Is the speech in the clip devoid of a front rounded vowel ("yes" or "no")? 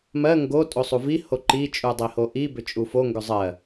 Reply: no